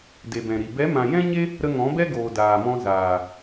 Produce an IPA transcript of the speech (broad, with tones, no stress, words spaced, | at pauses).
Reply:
de˨bɛ̃˨ɾi˨ bɛ˨˦mã˨jɛ̃˦ɲe˦ | ɾə˧ŋɔ̃˨˦bɛ˦ɡoː˨ daː˨mɔ̃˧ zaː˨